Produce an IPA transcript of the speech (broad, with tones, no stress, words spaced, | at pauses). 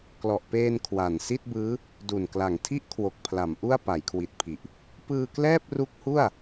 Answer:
klɔ˨˩ʔpeː˧n kʰwa˨˩n si˥˩t̚bɯː˦˥ | du˨˩nkla˨˩ŋtʰi˥˩ʔkʰwo˨˩k̚ pʰla˩˦mʔu˥˩a̯ pa˩˦jkʰwi˨˩t̚pʰi˨˩ʔ | pɯː˧klɛː˥˩p̚ru˦˥k̚hu˥˩a̯